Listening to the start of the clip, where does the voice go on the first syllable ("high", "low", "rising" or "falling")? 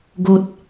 high